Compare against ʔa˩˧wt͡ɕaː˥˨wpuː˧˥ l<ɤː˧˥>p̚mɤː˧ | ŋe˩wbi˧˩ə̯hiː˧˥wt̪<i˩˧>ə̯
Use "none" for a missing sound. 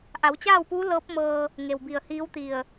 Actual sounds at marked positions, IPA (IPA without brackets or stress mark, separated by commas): ɤː˧˥, i˧˩